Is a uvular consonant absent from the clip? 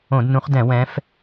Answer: no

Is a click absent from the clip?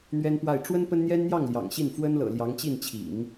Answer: yes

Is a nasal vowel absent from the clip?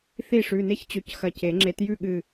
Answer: yes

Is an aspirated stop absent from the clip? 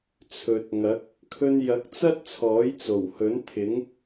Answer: no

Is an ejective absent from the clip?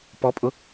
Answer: no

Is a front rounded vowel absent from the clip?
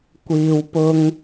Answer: yes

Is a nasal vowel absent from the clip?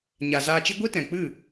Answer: no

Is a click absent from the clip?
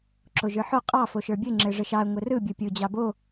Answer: no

